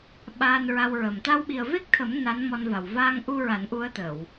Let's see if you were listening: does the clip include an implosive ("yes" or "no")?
yes